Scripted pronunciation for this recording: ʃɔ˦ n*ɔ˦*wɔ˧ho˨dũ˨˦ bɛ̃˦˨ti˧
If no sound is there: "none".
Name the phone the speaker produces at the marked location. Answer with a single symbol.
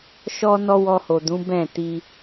ɔ˦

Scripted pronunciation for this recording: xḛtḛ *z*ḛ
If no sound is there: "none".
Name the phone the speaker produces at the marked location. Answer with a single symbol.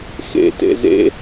z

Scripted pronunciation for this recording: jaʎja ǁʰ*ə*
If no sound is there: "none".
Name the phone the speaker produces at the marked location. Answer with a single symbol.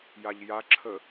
ə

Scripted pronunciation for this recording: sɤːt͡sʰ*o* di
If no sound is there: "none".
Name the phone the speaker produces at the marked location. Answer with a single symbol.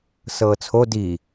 o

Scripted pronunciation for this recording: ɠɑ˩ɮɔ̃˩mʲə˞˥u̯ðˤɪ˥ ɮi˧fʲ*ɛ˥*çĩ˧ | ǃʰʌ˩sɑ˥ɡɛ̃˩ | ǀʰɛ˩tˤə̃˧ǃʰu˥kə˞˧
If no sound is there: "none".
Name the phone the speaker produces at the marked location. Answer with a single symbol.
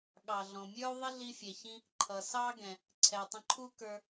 ɛ˩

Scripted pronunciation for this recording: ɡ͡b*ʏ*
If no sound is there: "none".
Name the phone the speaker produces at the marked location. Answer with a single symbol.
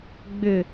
ʏ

